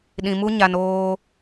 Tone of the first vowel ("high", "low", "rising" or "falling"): low